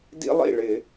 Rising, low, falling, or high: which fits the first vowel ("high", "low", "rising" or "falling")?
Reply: high